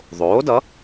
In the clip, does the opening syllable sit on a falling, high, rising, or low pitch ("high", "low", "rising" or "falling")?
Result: rising